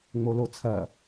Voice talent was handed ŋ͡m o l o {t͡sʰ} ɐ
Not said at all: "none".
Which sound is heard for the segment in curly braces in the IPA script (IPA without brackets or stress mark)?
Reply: t͡sʰ